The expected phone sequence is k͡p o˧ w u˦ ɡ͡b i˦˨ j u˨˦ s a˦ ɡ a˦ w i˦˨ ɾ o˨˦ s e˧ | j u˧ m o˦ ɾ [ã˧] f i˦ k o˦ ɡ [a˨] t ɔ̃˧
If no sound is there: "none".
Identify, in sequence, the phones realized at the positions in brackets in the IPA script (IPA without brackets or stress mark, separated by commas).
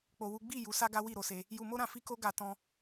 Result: ã˧, a˧